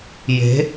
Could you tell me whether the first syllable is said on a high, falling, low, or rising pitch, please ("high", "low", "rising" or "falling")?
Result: rising